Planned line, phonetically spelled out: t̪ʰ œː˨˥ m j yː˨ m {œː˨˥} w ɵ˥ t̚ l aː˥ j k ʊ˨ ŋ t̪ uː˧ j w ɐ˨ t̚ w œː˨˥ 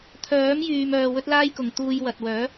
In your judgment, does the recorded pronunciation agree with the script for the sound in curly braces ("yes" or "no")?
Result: no